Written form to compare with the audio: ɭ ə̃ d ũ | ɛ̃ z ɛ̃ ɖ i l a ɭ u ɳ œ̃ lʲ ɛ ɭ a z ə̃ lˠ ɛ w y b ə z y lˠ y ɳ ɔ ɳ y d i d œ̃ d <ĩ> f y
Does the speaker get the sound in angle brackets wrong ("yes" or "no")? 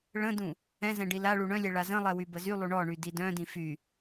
no